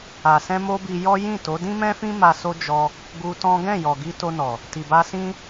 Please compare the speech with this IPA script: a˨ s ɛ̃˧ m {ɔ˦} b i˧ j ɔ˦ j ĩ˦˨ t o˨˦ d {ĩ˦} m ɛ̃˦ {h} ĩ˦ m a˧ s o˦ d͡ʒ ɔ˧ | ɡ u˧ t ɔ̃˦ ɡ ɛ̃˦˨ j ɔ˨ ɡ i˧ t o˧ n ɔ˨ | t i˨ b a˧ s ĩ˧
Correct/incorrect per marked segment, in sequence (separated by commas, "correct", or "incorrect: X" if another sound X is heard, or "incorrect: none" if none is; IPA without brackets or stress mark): incorrect: o˦, correct, incorrect: f